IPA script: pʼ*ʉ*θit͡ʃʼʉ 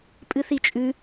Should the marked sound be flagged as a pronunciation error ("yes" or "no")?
yes